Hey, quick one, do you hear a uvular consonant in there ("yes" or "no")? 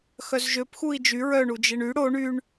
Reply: no